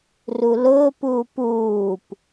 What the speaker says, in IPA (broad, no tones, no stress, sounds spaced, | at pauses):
r u l ʊː p uː p uː p